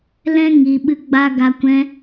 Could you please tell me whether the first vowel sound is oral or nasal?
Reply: nasal